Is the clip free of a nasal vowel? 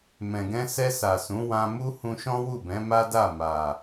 no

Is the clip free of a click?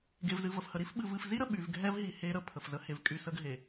yes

